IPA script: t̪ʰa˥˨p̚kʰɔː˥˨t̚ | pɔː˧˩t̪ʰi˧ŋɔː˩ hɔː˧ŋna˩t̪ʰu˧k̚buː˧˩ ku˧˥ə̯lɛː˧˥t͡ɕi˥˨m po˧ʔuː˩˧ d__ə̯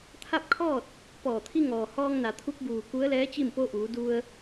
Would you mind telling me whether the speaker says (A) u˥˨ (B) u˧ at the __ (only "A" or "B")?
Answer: B